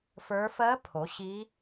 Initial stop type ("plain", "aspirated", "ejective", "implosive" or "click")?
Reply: aspirated